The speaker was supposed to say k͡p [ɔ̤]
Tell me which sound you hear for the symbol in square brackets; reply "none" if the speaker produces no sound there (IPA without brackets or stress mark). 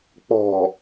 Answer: ɔ̤